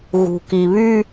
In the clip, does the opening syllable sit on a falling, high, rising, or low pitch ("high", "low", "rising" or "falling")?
low